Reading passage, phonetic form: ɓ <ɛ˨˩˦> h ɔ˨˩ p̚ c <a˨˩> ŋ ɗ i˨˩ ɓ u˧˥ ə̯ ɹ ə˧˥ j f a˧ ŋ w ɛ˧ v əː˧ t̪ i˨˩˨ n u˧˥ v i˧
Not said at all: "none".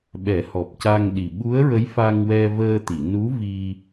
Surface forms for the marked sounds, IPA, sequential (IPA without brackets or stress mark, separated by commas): ɛ˨˩˦, a˧